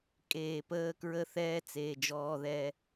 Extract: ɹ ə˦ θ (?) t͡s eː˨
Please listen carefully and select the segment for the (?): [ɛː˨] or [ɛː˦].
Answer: ɛː˦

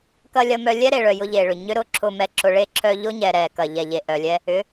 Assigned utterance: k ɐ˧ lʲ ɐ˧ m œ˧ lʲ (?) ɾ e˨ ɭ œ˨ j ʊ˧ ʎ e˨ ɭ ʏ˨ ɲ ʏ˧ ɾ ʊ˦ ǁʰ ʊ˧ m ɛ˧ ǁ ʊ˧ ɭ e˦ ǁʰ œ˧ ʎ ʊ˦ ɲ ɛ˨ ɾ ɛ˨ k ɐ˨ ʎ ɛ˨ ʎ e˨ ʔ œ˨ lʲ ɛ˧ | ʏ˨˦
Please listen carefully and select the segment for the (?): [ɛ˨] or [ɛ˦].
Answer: ɛ˦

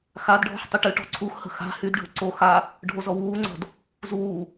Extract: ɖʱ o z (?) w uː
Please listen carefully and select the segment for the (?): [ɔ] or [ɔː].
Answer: ɔ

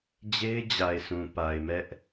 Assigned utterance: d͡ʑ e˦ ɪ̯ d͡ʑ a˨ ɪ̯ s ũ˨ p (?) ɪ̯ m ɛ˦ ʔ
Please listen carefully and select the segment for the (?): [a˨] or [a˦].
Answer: a˨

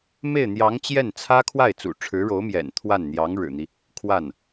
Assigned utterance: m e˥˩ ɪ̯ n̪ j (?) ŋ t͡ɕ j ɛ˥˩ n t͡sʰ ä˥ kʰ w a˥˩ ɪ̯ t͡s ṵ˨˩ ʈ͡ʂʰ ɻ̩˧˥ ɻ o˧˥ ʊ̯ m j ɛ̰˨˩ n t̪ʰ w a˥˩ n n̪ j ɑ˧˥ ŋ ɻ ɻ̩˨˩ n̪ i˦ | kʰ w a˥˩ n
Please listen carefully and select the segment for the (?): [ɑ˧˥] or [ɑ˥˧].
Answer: ɑ˧˥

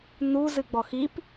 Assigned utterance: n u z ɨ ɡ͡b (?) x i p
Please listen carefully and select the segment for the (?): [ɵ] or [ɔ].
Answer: ɔ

